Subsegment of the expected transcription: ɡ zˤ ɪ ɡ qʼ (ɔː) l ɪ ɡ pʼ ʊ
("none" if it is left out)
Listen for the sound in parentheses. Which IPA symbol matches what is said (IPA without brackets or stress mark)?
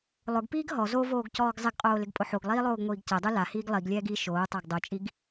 oː